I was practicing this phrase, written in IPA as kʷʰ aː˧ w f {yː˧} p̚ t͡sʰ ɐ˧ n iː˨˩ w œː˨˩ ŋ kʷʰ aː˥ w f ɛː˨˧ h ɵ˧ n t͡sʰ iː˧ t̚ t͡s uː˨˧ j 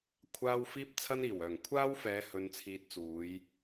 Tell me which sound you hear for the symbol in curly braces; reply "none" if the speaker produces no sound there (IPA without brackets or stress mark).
iː˧